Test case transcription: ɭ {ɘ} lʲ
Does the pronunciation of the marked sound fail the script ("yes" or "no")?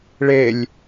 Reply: yes